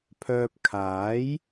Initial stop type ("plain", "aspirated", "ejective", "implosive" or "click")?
aspirated